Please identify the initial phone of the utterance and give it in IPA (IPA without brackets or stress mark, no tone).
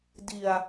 d